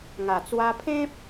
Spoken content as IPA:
ŋa˨˩ t͡swa˧pʰẽ˦p̚

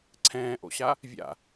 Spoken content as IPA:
ǀʰɛ̃ːʔo̰ɕa | vʲa̰

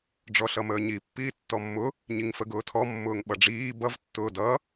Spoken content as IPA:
ɖ͡ʐɔɬʌməːɲi pːiːtːɔmːʊ | ɲiŋfəɡʊːtʰɔ mːʊːŋɓʌɖ͡ʐiː bʌv tːʊːdʌ

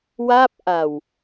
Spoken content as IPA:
wa˥˩p̚ʔa˨˩w

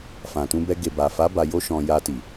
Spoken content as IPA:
fã˨tũ˧bɛ˧ ɡe˨ba˨fa˨˦ ba˧ jo˧ʃɔ̃˨ ja˧ti˨

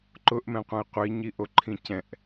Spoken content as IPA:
ǃʊʔmɛ̃qʷɛ̃i̯ qʷiɲiʔoǃʰĩ cɛ̃ʔ

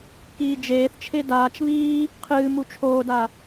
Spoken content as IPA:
kiːd͡ʒeːθt͡ʃʰe daːt͡ʃ βiː | qʰɨːmu t͡ʃʰoːda

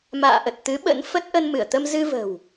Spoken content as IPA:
ma̰ː˧˨ʔə˨˩t̚t̪ɨ˨˦ ɓə̰˧˥nfə˦˥t̚ ʔə˧nmɨ˧˩ə̯t̪ə˧m zɨ˧və̤˨˩w

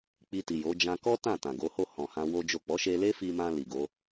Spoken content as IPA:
k͡pi˧ti˨jo˨˦ d͡ʒã˧ kɔ˦ tã˦˨tã˨ɡo˨˦ho˦˨ hɔ̃˨hã˧ wo˦d͡ʒo˦˨ k͡pɔ˨˦ʃe˧le˦ fi˧mã˧ li˨ɡo˨˦

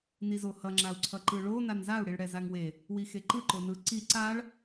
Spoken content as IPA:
nizohʌ ŋ͡ǁau̯ǀʰʌǃɯɭo nanzau̯ ɽiɭɽɛzaŋwe | wixeǃɯ ǃonɯ ǀi ǀaɭ

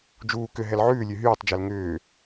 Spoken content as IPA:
d͡ʒuː kʏ ɦɛlʕʉːlʲʉ ɦyːtˤd͡ʒɛl ŋʏː

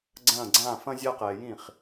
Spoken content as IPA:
ɡ͡ǀɐ̃ː˦˨ ɡ͡ǀã˦˨fɐ̃˦ zʲa˦qɛː˨ jĩ˦˨χ

